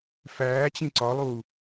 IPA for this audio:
f æː t͡ɕ ĩ ǀ ɒ lˠ uː

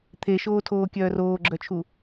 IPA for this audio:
t̪ʰ e ʃ oː tʰ oː kʲ œː r oː ɡ͡ǁ œ t͡ʃʰ u

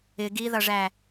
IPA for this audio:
ɪ ɡ i ð ʌ ʐ æ

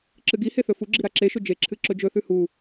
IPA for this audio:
ǁ ɨ ɡ i h e θ ɵ f u ɡ͡ǁ i ɾ a ǁ e ʃ ɵ d͡ʒ e ǁʰ ɨ ǁ ɵ d͡ʒ ɵ θ ʉ h u

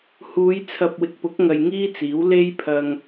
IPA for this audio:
h uː˨˧ j t͡sʰ ɐ˨ p̚ w ɪ˨ k̚ p ʊ˨˥ k̚ ŋ ɐ˧ j ŋ iː˥ t͡s iː˨˥ w l e˥ j pʰ ɐ˧ ŋ

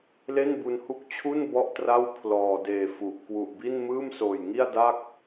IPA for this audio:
l e˥˩ n b u˧ n h u˦˥ k̚ t͡ɕʰ u˥˩ n b ɔ˥˩ ʔ t r a˥˩ w pʰ l ɔː˨˩ d eː˨˩ f u˨˩ ʔ k w u˨˩ ʔ b i˥˩ n m ɯː˥˩ m s oː˨˩ j ŋ i˥˩ a̯ d a˥˩ k̚

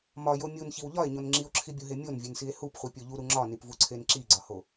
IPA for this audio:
m ɒ j o mʲ u n ç i w ʎ ɒ e̯ ɲ o n ŋ͡ǁ i o̯ ǁʰ i bʲ u ɦ e mʲ o n vʲ e n s i e̯ h u p χʷ i pʲ o ʎ u ɾ u ŋ͡ǁ ɒ n i p v u ǀʰ e n ǁ i ɡ͡ǀ ɒ h o

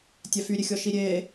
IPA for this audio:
tʲ æ f y ɾʲ e xʲ ɔ ʃ i ɾʲ e

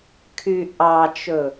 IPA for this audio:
kʰ y ʔ ɑ t͡ʃ ɵ

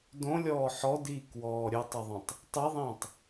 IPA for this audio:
d õ lʲ ɔː ħ ɔ d iː k w ɔː ɾʲ ɵ tˤ ə ðˤ ĩ tˤ | tˤ i ðˤ ĩː tˤ

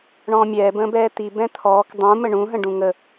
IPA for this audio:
ɳ ɔ̃ː mʲ ɛː b ə̃ː b ɛː t̪ i b ɛ̃ t̪ʰ ɔː k dˤ ũ m ə ɳ ũ ɦ ə̃ ɖ ũ ŋ ə

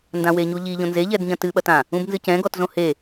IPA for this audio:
n d ã w e ɲ u ʎ i ʎ õ n z e ʎ ɛ d ɲ ɐ̃ t ɨ ɓ ɐ t ã | ũ b n z ɨ c ɛ̃ ɡ ɔ t z õ h e

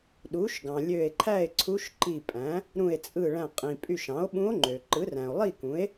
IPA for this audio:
ɗ u˩˥ ʃ ɡ ɑ̃˩ lʲ ø˧˩ e̯ ǃʰ æ˥˨ e̯ ǀʰ u˧˥ ʃ ǃ i˧˩ pʼ æ̃˩˥ | ɾ ũ˧˩ e̯ t͡sʼ ɯ˧˩ ɭ æ̃˧˩ qʼ ĩ˩ pʼ y˧˩ ʃ ɑ̃˩˥ o̯ ɓ ũ˧˥ o̯ ŋ͡ǃ ø˩ ǃ ɯ˩˥ r æ̃˩ o̯ lˠ i˥˨ k ũ˩˥ e̯

